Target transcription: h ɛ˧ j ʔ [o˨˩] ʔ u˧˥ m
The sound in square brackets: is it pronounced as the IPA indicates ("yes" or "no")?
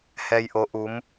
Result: no